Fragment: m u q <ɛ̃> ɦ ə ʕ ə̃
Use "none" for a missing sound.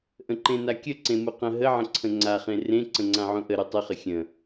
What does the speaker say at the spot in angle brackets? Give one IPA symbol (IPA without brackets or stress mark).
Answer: ə̃